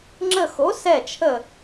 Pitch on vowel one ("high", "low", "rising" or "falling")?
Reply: falling